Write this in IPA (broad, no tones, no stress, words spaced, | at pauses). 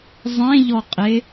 zˤẽʎɔqʼe